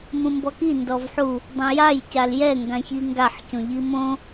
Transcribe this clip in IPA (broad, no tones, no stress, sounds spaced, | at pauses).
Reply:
m ũ m b ɔ k i n d ɔ v ħ u | dˤ õ j a j c a l j ɛ ŋ ɡ ã ç i ŋ ɡ a ħ c õ ʎ i m õ